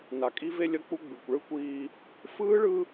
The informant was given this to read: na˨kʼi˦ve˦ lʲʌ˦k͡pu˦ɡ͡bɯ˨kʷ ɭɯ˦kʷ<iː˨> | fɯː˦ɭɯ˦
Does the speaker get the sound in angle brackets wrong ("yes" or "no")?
yes